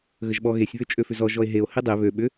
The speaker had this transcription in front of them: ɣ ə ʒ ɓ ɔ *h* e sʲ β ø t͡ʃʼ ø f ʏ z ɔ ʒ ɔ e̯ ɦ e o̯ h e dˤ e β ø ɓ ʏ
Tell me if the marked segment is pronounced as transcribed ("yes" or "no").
no